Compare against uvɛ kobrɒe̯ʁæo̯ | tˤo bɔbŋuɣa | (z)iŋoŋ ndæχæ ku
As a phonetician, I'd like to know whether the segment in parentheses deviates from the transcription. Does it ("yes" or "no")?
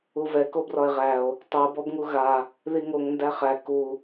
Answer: yes